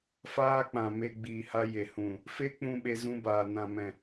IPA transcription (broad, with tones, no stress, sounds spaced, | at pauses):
f aː˦ k͡p ã˨ m e˧ ɡ͡b iː˨ h a˧ j e˨ h ũ˨ | f e˦ k͡p ũ˧ ɓ e˧ z ũ˧ b aː˨ n ã˨ m ɛ̃˨